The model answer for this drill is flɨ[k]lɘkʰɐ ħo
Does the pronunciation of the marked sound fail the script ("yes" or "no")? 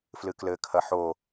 no